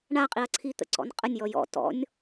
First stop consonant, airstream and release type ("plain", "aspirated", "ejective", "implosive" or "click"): ejective